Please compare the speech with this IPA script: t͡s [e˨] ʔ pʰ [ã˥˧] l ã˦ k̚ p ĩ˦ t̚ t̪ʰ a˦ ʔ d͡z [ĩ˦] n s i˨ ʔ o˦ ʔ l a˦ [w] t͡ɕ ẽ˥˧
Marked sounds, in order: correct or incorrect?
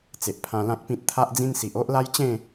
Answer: correct, incorrect: ã˧, correct, incorrect: j

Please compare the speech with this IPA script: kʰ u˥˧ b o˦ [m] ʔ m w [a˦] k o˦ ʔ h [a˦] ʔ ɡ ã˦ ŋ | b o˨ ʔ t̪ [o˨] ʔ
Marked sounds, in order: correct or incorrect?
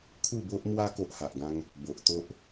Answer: incorrect: none, correct, incorrect: a˨, incorrect: o˦

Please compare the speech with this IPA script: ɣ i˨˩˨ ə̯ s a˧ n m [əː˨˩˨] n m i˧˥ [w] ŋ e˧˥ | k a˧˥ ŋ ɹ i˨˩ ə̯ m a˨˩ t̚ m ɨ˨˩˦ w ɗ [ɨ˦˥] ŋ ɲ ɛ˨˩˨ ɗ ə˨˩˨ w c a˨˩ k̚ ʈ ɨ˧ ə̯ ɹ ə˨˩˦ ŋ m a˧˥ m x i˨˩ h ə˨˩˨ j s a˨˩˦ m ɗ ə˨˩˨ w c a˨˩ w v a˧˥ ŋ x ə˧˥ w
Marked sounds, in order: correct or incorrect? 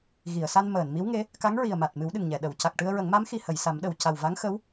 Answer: correct, correct, incorrect: ɨ˨˩

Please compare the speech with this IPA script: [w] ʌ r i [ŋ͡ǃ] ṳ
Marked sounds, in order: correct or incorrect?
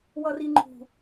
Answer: correct, correct

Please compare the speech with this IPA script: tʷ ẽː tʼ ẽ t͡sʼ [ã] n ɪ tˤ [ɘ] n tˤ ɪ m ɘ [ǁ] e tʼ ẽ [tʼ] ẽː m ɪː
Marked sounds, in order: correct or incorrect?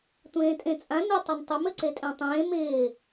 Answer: correct, correct, incorrect: ǀ, incorrect: tˤ

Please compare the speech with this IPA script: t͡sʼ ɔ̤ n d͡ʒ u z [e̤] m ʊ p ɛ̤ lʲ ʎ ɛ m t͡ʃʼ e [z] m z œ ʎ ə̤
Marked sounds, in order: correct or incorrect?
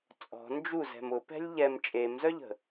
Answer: incorrect: ɛ̤, incorrect: none

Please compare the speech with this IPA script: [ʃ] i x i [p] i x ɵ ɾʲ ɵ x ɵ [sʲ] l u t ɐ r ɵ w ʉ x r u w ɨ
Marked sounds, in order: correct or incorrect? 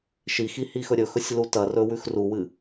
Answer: correct, incorrect: h, correct

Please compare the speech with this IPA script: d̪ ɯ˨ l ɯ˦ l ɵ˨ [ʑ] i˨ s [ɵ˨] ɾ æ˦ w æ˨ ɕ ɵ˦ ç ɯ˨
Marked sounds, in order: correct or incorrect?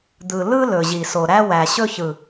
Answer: correct, incorrect: o˨

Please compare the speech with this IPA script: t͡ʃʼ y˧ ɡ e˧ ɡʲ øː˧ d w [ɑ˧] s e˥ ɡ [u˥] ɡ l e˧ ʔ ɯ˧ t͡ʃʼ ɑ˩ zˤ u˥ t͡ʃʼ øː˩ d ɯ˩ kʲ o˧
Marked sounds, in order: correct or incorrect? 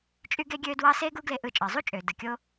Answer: correct, correct

